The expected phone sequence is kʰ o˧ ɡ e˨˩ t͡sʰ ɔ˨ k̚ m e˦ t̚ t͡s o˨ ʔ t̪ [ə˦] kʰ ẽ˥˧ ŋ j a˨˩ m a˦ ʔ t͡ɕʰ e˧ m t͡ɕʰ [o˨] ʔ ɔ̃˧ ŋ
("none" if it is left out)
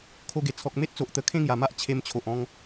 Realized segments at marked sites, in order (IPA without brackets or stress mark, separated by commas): ə˧, o˨